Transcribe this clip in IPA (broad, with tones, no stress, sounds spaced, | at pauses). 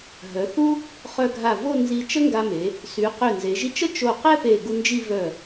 ɦ œ˩˧ θ u˥ | χ œ˧ ɡʱ a˧˩ v o˥˧ n z i˧ t͡ʃ ə˥ ŋ ɡ a˧ m e˩˧ | s y˩˧ q ø˧˩ n z e˩˧ ʒ i˧ t͡ʃ ə˥ t͡ʃ o˧˩ q ɛ˥ p e˧˩ ɡ u˧ n d͡ʒ i˥˧ v œ˧˩